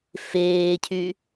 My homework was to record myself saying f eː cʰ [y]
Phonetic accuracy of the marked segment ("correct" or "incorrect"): correct